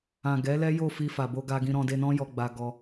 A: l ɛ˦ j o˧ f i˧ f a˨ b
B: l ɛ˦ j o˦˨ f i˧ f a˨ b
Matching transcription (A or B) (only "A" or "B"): B